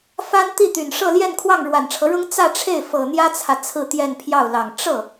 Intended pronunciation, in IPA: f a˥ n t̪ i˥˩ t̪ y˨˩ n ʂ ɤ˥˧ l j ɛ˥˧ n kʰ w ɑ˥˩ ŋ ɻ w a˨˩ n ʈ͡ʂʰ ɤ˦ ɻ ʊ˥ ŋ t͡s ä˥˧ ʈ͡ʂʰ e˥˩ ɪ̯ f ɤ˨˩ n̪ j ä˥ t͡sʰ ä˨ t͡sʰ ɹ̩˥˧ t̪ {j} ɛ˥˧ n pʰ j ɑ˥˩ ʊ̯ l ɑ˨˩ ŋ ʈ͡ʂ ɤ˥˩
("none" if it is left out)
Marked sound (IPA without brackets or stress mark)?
j